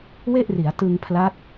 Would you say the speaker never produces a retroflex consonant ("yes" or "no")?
yes